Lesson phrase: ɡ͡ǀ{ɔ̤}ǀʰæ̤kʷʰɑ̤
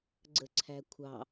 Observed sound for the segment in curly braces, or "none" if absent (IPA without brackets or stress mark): ə̤